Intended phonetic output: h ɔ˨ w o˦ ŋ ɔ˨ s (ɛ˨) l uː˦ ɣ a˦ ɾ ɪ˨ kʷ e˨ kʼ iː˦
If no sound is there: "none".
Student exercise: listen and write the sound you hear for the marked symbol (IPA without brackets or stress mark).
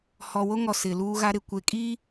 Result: ɪ˨